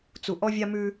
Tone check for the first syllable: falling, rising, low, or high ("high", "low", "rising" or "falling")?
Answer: low